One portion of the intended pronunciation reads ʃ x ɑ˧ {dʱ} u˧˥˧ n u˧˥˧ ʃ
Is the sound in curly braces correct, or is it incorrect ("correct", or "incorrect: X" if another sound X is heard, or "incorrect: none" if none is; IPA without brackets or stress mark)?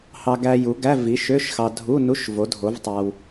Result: correct